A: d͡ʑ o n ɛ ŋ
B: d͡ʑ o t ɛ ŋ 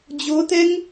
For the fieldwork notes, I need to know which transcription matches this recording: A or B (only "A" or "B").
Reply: B